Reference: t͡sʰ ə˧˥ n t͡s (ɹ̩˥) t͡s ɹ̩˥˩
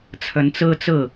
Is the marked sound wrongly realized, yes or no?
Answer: no